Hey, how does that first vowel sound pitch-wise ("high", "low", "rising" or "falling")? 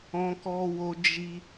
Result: high